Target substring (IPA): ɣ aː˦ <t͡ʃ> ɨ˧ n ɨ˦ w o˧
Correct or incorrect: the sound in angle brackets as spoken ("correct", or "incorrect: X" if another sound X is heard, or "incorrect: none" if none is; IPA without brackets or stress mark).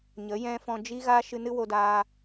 incorrect: ʃ